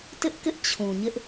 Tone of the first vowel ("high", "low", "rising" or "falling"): high